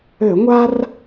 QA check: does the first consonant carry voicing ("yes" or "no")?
yes